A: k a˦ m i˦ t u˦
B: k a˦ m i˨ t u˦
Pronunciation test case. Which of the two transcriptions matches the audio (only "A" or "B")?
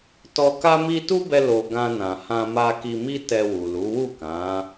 A